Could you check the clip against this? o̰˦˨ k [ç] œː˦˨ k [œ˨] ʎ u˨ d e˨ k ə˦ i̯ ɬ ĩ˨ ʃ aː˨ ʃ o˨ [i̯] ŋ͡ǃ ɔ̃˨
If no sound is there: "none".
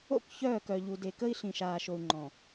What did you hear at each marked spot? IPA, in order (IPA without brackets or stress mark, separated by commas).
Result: ç, œ˨, u̯